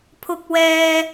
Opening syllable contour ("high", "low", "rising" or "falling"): high